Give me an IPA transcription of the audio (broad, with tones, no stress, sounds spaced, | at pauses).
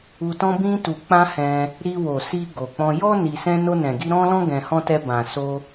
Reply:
u˧ t ɔ̃˧ b ĩ˧ t u˨ k͡p ã˧ h ɛ̃˧ | ɾ i˧ w o˨ s i˧ ɡ o˨ k͡p ɔ̃˧ j ɔ˦ n i˧ s ɛ̃˧ n o˧ n ɛ̃˨ ɡ i˧ ɾ ɔ̃˦ l ɔ̃˦ ɡ ɛ̃˧ h ɔ̃˦ t ɛ˧ b ã˨ s o˧